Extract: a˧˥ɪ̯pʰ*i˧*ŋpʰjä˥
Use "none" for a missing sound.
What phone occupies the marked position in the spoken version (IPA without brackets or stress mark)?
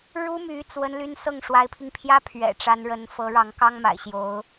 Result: i˧